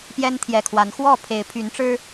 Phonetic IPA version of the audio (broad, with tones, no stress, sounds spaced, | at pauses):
p j ɛ˦ n t̪ʰ j ɛ˨˩ kʰ w a˨˦ n x w ɔ˥˨ pʰ e˨˦ ɪ̯ pʰ y˨˦ n ʈ͡ʂ ɻ̩˦